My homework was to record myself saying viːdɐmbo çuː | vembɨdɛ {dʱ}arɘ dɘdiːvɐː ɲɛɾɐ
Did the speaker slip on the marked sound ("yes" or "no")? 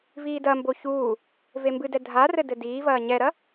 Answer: no